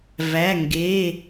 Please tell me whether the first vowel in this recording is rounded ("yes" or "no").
no